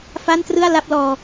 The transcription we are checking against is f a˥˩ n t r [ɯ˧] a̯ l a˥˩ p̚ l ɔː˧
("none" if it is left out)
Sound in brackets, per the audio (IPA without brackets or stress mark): ɯ˥˩